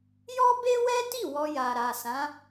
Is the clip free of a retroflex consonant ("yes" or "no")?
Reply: yes